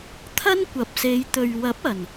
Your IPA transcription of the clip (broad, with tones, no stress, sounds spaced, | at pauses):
t̪ʰ ɐ˥ n kʷ ɐ˨˥ p̚ s e˨˧ j t̪ ɵ˨ ɥ w ɐ˨˥ p̚ ɐ˨˩ n